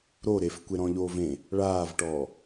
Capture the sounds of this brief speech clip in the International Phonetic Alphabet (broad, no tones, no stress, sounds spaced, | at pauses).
ɾ o ɾ e f kʷ e ɾ ɔ̃ ʎ oː v ẽ | ɭ aː v ʈ ɔː